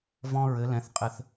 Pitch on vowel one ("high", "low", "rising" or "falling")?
high